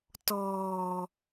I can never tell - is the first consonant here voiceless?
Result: yes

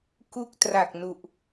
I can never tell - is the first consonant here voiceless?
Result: yes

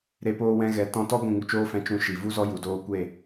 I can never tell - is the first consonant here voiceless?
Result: no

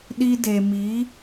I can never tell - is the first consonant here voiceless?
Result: no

